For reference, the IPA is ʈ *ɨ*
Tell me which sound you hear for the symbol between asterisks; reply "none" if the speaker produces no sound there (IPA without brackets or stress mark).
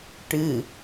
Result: ɨ